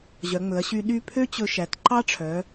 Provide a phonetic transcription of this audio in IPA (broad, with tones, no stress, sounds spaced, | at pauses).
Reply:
ʑ œ˩˧ ŋ͡m ɵ˩˧ ɐ̯ ɕ y˧ ɗ y˥˧ pʰ ø˦˥ t͡ɕ ɵ˧ ʃ æ˩˧ t ǃ ɑ˦˥ ʈ͡ʂʰ œ˩˧